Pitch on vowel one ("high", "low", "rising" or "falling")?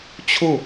falling